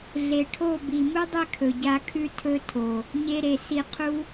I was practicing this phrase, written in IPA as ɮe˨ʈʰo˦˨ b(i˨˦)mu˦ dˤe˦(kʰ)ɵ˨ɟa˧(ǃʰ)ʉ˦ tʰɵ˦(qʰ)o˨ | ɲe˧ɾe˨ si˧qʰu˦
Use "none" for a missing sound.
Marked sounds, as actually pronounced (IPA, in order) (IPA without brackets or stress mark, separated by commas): i˨, kʰ, kʰ, tʰ